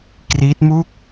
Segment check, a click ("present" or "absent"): absent